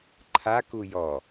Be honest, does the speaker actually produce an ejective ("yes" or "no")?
no